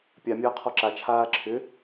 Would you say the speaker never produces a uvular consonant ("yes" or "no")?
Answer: no